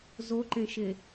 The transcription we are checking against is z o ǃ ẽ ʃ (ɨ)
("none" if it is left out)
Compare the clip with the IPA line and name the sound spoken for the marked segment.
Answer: e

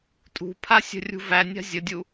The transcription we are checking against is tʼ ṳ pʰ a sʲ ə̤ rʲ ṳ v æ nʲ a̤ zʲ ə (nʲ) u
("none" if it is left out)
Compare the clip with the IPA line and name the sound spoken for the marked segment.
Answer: dʲ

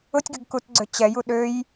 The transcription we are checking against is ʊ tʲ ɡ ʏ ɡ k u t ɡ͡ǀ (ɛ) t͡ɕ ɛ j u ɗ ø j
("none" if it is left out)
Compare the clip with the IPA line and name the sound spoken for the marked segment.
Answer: ø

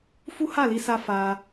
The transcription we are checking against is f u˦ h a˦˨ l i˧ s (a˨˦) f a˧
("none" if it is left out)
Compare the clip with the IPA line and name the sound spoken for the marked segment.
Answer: a˧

